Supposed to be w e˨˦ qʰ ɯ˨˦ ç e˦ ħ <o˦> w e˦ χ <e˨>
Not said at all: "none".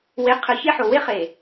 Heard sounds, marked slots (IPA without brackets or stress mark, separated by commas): o˨, e˨